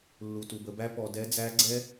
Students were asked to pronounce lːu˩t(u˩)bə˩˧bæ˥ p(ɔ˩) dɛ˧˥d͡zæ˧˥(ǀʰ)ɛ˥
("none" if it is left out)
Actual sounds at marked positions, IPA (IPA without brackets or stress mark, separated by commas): u˩, ɔ˩, ɡ͡ǀ